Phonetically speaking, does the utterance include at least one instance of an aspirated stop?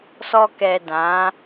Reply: no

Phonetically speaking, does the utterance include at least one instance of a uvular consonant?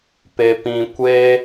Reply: no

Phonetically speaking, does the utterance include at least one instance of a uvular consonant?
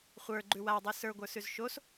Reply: yes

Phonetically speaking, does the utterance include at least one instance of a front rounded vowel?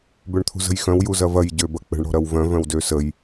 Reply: yes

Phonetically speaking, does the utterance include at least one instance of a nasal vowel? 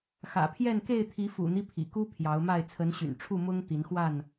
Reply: no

